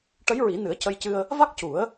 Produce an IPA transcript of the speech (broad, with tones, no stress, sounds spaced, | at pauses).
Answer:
ʈ ə˧˥ j ɹ i˨˩˦ n ɨ˨˩˦ ə̯ c ə˧ j c ɨ˧ ə̯ | v a˦˥ k̚ c u˨˩˦ ə̯